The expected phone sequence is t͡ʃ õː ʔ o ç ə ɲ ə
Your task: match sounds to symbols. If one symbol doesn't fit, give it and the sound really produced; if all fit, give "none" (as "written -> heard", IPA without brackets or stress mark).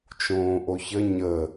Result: none